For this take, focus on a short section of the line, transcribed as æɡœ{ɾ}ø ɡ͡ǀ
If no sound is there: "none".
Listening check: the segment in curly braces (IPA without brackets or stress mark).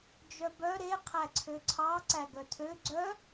tʰ